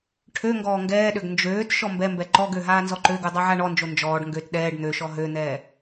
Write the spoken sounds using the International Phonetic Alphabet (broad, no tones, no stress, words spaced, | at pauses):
ʈʰø ŋɡɔːŋɡɛːɗøɡ nd͡ʒøːt ʃɔmbɛmbɛ ǃɔɡø ɦaːnzɔǃøɡu dˤaʕaɳɔnd͡ʒo nd͡ʒɔːɖ ŋɡøt ɗɛːɖ n̪øʃɔ ɦøn̪ɛː